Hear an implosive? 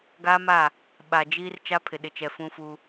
yes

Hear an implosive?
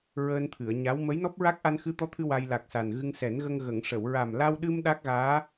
yes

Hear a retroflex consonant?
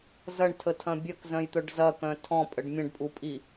yes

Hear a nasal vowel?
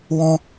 yes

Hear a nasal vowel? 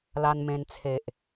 yes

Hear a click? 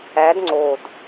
yes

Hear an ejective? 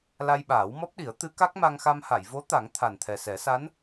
no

